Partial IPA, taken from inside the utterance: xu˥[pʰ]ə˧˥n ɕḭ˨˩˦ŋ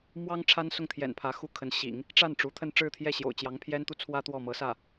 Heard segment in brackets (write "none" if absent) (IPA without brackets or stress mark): kʰ